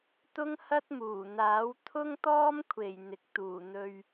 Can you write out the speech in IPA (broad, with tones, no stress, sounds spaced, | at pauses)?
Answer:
t̪ ʊ˥ ŋ h ɐ˥ t̚ m uː˨˩ n̪ aː˨˥ w t̪ʰ ʊ˥ ŋ t̪ ɔː˥ m kʷʰ e˨˩ j n̪ ɪ˨ k̚ t̪ uː˨˩ n̪ ɵ˧ ɥ